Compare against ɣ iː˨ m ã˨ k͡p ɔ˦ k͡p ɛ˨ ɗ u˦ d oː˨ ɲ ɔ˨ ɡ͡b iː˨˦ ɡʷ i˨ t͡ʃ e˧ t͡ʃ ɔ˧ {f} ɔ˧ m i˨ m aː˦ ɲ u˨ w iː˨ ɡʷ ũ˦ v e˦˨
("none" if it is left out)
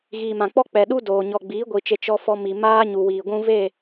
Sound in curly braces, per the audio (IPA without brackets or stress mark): f